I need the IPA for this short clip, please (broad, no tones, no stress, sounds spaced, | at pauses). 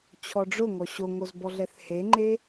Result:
t͡ɕʰ ɔ ɖ͡ʐ ʊ ŋ ɔ ɕ o ŋ o z b ɔ ɮ ɛ θ h e ŋ͡ǃ e